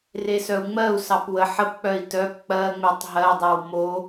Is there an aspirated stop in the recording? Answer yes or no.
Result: no